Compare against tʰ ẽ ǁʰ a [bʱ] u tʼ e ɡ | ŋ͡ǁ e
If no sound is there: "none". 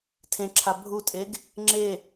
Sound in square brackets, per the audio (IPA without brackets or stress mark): bʱ